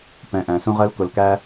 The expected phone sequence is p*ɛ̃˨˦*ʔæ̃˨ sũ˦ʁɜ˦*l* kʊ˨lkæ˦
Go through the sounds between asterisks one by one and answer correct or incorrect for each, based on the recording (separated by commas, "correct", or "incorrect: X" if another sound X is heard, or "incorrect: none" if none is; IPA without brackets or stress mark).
correct, correct